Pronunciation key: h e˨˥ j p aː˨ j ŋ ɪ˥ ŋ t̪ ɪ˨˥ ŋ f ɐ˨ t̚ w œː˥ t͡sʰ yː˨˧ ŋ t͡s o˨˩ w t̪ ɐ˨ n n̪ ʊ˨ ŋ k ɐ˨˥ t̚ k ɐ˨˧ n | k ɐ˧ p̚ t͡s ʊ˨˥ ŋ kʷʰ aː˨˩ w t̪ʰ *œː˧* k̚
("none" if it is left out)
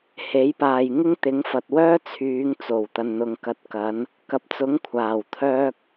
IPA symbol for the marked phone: œː˧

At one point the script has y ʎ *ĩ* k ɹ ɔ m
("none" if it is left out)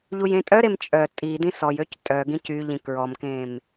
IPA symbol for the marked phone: ĩ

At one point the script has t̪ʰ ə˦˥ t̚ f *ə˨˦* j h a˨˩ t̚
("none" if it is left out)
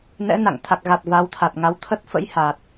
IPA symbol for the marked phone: ə̰˧˥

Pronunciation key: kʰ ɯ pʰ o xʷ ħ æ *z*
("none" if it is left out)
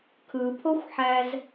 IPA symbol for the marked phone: z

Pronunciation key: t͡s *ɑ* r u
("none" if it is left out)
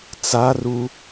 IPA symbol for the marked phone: a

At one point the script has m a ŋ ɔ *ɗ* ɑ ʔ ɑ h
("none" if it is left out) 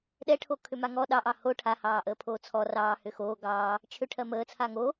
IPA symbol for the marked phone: ɗ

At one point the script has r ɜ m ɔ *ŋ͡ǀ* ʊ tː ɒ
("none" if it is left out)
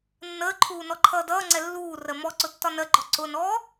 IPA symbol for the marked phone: ǀ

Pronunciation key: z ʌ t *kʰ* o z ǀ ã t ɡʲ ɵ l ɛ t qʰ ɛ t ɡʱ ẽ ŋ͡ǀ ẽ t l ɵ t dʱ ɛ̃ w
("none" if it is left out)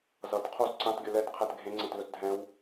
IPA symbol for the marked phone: qʰ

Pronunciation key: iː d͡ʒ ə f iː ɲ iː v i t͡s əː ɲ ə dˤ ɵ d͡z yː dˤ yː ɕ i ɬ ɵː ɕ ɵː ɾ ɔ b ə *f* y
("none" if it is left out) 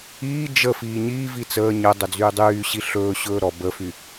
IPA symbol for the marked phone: f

